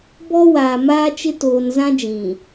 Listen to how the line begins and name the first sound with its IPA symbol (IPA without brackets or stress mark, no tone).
b